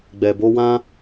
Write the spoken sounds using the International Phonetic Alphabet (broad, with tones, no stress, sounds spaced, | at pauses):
ɡ͡b ɛ˨ b o˧ w ã˦